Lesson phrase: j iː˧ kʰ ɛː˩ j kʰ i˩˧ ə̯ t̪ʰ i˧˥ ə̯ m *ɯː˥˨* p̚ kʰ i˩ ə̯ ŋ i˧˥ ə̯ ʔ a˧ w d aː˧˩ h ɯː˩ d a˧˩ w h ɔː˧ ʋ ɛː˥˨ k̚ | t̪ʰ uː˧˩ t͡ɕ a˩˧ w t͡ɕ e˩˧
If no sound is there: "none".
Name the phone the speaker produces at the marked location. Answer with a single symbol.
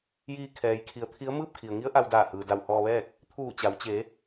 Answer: ɯː˥˨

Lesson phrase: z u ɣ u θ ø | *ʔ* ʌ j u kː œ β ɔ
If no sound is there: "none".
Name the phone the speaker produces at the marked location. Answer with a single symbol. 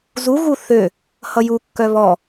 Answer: h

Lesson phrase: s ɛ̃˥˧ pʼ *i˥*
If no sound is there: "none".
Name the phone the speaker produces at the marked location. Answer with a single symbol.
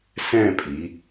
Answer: i˩˧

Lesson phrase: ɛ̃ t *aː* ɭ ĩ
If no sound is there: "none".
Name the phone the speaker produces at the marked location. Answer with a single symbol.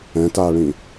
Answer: aː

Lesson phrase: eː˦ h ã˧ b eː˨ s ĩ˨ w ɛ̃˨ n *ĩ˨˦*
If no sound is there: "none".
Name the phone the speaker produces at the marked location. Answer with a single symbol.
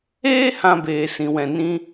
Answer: ĩ˧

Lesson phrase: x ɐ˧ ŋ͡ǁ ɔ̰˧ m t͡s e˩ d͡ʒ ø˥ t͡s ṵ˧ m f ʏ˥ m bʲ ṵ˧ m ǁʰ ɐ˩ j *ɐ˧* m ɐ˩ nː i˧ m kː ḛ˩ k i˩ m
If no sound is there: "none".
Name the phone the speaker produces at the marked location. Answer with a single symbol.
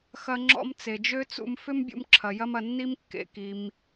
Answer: ɐ˧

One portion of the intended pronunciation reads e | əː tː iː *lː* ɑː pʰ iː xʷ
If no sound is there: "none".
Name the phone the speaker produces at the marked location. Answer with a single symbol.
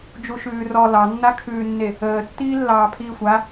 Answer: lː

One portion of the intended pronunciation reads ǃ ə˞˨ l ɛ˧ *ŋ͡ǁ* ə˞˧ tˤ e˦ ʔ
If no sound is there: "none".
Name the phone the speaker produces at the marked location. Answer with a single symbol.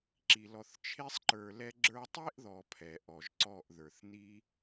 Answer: ɡ͡ǁ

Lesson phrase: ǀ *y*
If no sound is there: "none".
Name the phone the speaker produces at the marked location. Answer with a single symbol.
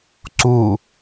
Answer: u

